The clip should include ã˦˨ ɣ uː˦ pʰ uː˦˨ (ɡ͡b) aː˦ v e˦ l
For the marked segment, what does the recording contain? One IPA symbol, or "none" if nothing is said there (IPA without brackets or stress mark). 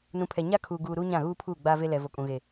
ɡ͡b